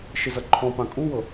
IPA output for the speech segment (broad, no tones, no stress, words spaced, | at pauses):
ʃɪzʌǃʰɔ̃pã kʼuwɤ